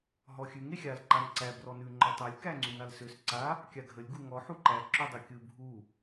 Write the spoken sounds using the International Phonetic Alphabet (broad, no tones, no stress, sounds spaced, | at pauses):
ɦ ɔ xʲ ʉ ŋ e xʲ a l ǃ a n ǀ æ b r ɔ n ʉ ŋ͡ǃ ɔ tˤ æ lʲ k æ ŋ͡ǀ ʉ n a l s ø s ǀ a | kʲ a ɡʱ ə lʲ ɡ u ŋ ɔ ħ u ǃ æ ǁ ø dˤ ɯ kʲ ɯ bʱ u